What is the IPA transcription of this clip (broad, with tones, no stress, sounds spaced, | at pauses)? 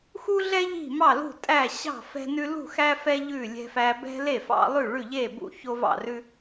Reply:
x u˦ ɮ ɛ˦ ʎ i̤˥˩ m ɑ˥˩ l ṳ˥˩ tʼ æ˥˩ ɕ ɑ̤˥˩ f ɛ̤˦ n ʉ˦ l ṳ˥˩ x æ˦ f ɛ˦ ʎ ʉ˥˩ lʲ ɛ̤˦ f æ˦ b ɛ̤˦ l e˥˩ f ɑ̰˦ lˠ ʉ˥˩ ɭ ʉ˥˩ ʎ e˥˩ b ṵ˦ ç o˦ v ɑ̰˥˩ r ʉ˦